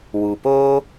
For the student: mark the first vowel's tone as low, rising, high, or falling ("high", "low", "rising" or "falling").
low